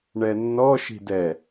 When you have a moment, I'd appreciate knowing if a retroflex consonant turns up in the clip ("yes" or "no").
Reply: yes